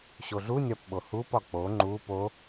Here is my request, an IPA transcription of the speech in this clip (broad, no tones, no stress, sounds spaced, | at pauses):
ɕ o ɮ u nʲ ɒ p ɓ o h u p ɒ k͡p o ŋ͡ǃ u p o